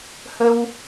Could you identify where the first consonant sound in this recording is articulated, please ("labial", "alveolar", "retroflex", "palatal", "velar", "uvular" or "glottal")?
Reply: glottal